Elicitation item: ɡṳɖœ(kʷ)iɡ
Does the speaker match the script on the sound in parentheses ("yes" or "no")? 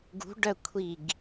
no